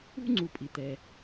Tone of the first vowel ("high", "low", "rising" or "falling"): high